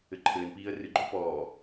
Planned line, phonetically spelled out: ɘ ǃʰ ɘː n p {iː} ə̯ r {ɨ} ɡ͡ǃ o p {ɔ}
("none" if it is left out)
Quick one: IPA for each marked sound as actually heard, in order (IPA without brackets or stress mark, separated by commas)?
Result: iː, ɨ, ɔː